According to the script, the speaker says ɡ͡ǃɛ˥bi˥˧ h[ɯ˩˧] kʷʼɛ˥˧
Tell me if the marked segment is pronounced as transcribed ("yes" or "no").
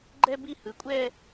yes